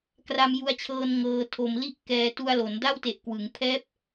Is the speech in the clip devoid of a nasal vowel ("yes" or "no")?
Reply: yes